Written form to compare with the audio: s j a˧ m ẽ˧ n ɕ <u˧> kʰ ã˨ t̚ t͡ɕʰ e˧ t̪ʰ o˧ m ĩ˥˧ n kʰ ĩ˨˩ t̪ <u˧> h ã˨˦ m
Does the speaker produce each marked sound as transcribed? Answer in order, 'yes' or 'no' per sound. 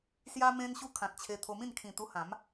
yes, yes

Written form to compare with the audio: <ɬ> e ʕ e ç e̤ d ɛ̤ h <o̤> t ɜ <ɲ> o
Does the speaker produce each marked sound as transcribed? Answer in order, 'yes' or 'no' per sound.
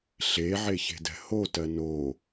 yes, no, no

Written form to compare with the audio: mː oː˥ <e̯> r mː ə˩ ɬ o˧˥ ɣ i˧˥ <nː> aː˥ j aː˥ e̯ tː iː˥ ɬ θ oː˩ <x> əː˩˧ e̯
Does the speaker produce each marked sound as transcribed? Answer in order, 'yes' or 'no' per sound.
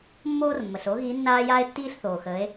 no, yes, yes

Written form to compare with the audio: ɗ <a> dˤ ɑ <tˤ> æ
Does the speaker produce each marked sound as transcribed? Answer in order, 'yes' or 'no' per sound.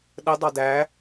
no, no

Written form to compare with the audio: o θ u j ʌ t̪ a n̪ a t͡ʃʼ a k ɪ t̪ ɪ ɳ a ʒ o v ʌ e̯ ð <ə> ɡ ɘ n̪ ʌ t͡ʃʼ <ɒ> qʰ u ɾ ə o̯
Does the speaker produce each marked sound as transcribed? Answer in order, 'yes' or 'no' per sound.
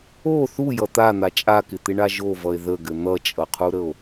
yes, no

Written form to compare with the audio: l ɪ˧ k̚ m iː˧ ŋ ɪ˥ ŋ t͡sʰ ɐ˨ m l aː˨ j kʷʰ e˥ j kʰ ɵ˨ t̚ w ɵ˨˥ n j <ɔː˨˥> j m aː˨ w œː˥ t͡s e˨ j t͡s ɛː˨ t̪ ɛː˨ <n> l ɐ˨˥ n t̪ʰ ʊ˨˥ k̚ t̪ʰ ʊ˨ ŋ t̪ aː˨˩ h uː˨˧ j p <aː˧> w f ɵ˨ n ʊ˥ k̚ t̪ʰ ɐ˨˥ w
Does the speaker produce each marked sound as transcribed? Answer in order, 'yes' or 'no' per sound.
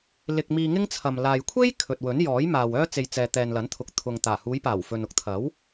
yes, yes, no

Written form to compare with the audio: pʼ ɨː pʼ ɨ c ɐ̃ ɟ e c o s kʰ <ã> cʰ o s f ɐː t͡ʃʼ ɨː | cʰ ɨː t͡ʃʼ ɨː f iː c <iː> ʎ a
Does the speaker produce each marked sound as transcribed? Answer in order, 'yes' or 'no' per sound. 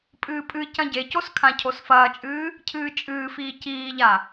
yes, yes

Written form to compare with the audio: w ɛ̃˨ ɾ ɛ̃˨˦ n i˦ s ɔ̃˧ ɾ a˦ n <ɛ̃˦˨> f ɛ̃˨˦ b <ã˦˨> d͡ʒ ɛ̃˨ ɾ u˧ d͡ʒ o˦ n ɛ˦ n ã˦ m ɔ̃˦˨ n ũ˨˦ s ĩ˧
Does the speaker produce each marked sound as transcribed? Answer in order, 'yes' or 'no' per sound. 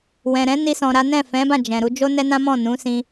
yes, yes

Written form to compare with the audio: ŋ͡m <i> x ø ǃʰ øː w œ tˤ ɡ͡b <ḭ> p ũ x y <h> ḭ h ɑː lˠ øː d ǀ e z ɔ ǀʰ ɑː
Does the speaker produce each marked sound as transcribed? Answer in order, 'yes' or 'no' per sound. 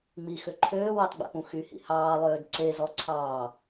yes, no, yes

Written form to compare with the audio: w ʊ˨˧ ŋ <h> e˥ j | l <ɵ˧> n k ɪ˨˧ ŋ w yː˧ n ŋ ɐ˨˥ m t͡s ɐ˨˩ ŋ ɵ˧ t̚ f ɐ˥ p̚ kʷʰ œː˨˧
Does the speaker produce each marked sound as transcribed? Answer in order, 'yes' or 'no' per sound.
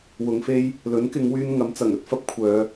no, no

